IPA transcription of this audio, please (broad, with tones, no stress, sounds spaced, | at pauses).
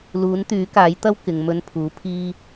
l uː˨˥ n t̪ yː˨˥ k aː˨˥ j t̪ ɐ˥ w k ɪ˨˧ ŋ m ɵ˧ n pʰ uː˨˥ pʰ iː˥